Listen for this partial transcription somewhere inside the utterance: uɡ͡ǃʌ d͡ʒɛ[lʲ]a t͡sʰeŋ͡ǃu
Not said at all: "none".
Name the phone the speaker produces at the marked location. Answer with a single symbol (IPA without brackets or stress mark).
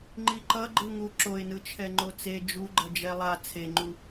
lˠ